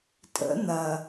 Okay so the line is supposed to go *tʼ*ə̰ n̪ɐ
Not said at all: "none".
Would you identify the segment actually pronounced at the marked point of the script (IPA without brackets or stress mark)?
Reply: tʼ